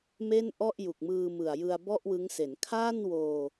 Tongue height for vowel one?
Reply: mid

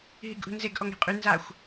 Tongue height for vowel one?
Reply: high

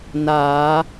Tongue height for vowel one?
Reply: low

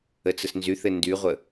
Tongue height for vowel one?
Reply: mid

